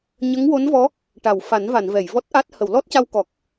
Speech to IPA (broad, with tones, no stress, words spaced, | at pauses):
ɲə˧˥ŋwo˧˥nvɔ˧˥ | ʈa˨˩˨wfa˨˩˦nva˨˩˨n vɛ˨˩˨jvɔ˦˥t̚ʔa˦˥t̚ hə˨˩˨wlɔ˦˥t̚ca˧wkɔ˨˩k̚